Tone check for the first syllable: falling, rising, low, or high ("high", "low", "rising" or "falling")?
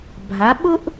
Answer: rising